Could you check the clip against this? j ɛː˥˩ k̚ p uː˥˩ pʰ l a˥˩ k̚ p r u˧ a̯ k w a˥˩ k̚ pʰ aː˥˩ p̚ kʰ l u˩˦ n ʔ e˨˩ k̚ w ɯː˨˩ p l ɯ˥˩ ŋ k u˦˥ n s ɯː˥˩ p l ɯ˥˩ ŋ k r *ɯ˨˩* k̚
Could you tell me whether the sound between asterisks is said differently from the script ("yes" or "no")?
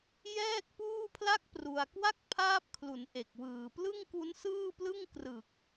no